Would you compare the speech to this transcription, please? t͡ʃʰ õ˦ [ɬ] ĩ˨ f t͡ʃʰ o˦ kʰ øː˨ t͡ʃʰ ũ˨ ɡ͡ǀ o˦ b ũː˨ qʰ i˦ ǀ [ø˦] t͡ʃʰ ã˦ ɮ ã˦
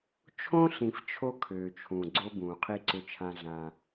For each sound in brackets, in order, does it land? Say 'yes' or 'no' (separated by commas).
yes, yes